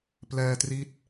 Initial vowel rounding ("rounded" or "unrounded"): unrounded